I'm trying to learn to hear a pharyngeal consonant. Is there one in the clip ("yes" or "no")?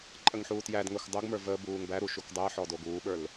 yes